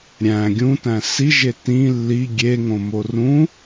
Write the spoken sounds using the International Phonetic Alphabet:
ɾʲæ̃ ɡʲũtæ̃ siʒe tĩ lːi ɡʲeŋõmo rũ

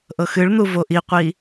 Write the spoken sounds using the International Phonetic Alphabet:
ʔɤxɨɭn̪u voʔiqʷi

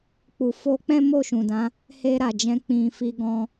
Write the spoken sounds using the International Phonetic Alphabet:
k͡pu˨ fo˧k͡pɛ̃˦ mo˦˨ʃũ˨dã˨˦ | he˧ ɾa˨d͡ʒɛ̃˧ k͡pĩ˨fi˧ɡɔ̃˧

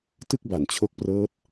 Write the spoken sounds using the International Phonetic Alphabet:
tɯ˥˩k̚ba˩˦nt͡ɕʰo˦˥k̚prɤː˦˥t̚

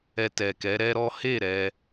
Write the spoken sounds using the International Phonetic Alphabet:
ɛ˧tɛ˨kɛ˨˦ ɾɛ˦ɾɔ˦ he˦˨ ɾɛ˧

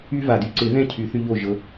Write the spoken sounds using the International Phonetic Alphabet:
y˦va˩dy˦ ǀɪ˨˩˦ðɛ̃˥˩ cʰy˨˩˦θy˦ʎo˥˩ ʒɤ˨˦

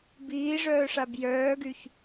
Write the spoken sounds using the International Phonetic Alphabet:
biːʐœːʂab jœːɡyç

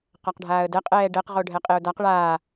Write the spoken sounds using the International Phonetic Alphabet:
qaqɖʱaːə̯dɛ qʼɛːɖɛq ʁoɖʱɛqʼeʊ̯daq ɭaː

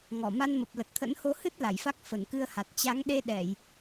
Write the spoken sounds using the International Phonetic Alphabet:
ŋɔ˧˩ ma˧nmə˨˩p̚lə˨˩t̚t̪ʰə̰˧˥n ho˨˦hɨ˦˥t̚ la˧˩jfa˦˥k̚ fə˧˩nkɨ˧ə̯ha˨˩t̚ t͡ɕa˨˦ŋɗe˧ ɗɛ˧˩˨j

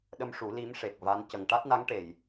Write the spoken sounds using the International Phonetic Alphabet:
ɗə˧mʂu˨˩˦ li˧˥m ʂe˨˩k̚va˧˥n cə˨˩ŋ ʈa˦˥t̚na˧˥ŋ ʈe˨˩˨j

